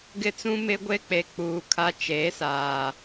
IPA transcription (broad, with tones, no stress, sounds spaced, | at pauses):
ɡ ɪ˦ t͡s ũ˦ m ɪ˦ ɡʷ e˦ k͡p e˨ k͡p uː˨ kʰ a˦ t͡ʃ e˨˦ s aː˨